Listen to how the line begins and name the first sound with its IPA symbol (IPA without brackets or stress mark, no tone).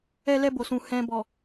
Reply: ɛ